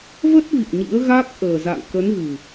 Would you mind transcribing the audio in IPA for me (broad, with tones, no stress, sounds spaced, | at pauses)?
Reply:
v ə˦˥ t̚ v ḭ˧˨ ə̯ ɲ ḭ˧˥ ə̯ ɣ a˦˥ k̚ ʔ əː˨˩ z a̰˧˨ ŋ k ə˨˦ n ɣ ɨ˨˩